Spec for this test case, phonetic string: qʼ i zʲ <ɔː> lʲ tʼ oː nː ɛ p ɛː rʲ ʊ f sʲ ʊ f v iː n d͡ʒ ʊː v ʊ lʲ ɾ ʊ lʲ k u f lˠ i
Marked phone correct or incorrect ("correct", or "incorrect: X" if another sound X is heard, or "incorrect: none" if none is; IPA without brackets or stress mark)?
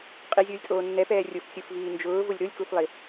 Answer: incorrect: ʊː